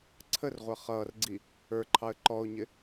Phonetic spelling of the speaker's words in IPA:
ǀʰərʁʷʌ χʌːrɡ͡ǀi | ə˞ǃʰɑə̯ ǃɔʊ̯ɲɪ

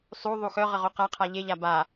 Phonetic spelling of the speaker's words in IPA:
sˤu ðˤuxœʁə ʁoqaqʰa ʎeʎa ba

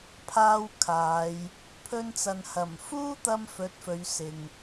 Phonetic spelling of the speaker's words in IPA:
pʰaː˥wkʰaː˨˧j | pʰɵ˧nt͡sɐ˨nhɐ˨˩m fuː˥t̪ɐ˧m fɵ˨˥t̚fɵ˨˧ɥsɪ˨ŋ

